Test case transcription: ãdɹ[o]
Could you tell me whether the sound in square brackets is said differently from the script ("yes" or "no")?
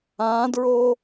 no